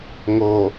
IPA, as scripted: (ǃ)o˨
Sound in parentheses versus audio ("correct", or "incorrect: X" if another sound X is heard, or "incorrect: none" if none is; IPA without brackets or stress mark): incorrect: ŋ